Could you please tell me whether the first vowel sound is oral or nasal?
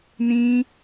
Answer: nasal